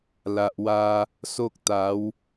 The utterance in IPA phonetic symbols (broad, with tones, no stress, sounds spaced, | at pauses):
l a˨ ʔ w a˧ | s o˦ k̚ t̪ a˨˦ w